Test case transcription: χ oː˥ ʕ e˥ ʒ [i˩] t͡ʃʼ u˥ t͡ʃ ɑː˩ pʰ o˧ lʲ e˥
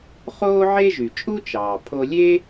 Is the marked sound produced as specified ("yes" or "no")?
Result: no